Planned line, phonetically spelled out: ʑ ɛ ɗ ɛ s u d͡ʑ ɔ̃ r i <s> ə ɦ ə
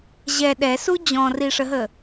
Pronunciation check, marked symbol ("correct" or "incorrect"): incorrect